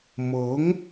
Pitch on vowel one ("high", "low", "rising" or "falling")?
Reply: rising